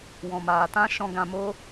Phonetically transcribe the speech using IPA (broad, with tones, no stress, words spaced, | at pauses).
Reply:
wɔ̃˨maː˨tã˦ʃɔ̃˧ ɡã˨ mo˧